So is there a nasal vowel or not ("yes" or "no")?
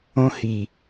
yes